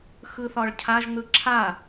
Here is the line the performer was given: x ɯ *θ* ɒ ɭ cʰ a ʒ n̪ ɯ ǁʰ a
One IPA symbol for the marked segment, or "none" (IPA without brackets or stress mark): θ